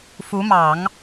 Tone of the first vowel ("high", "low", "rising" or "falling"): rising